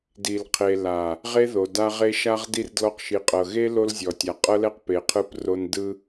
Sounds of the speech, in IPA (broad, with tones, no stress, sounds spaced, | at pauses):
d i˨ l qʰ e˨ l a˨ | ʁ e˦ ð o˨ d a˦ ʁ e˦ ʃ a˦ ʁ d i˦ r d l ɔ˦ q ʃ i˨ qʼ ɤ˨ ɣ e˦ l o˦ l zʲ ɔ˨ tʲ a˨ qʼ ɤ˦ l ɛ˦ q p e˨ qʰ ɯ˦˨ p r o˦ n d ɯ˦